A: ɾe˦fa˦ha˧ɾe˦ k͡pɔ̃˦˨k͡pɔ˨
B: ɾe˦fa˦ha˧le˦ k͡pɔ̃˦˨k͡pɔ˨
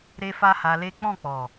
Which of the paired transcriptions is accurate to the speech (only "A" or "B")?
B